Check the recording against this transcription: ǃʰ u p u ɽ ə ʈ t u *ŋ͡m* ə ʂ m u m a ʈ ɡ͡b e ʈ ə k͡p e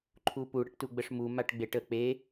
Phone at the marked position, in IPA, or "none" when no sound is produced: ɡ͡b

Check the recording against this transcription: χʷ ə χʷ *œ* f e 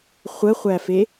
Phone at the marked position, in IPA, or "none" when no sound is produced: æ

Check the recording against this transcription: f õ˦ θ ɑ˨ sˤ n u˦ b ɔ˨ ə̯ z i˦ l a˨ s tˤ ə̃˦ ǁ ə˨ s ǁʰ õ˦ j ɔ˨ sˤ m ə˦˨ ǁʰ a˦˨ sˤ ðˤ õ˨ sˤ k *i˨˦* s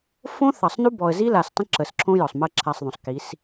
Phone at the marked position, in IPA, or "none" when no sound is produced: i˨˦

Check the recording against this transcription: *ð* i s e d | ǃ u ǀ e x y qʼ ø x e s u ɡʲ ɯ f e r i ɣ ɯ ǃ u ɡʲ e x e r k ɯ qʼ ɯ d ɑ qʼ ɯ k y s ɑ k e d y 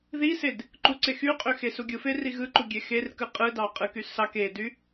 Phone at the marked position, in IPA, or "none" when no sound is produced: ð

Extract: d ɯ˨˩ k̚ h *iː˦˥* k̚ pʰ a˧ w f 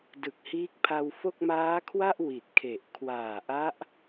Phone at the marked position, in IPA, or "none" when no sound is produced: iː˦˥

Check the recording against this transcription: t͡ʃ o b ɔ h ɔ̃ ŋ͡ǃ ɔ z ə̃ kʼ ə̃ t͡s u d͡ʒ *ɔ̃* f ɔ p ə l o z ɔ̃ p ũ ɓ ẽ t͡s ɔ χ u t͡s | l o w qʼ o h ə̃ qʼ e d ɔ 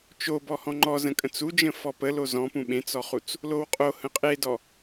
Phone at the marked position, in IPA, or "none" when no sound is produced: ə̃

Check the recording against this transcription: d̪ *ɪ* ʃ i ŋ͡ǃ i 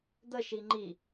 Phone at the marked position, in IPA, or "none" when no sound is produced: ə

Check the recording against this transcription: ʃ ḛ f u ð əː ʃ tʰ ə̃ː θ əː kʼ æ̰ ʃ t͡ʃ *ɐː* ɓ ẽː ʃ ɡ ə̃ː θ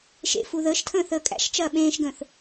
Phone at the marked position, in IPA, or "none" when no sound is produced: ɐː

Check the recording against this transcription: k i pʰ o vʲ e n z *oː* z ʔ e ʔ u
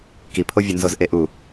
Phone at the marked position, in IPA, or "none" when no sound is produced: o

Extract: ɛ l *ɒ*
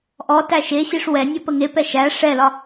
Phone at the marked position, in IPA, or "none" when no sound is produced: ɒ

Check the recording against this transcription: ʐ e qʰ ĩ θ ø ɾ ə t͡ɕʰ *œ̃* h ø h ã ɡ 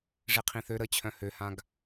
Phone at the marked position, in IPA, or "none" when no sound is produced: œ̃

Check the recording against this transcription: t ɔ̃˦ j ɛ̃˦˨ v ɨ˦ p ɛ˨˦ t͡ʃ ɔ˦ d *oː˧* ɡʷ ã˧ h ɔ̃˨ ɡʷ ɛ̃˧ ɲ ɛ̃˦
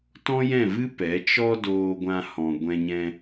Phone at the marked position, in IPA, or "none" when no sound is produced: oː˧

